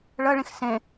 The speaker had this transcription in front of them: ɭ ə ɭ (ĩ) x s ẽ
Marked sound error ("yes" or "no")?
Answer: no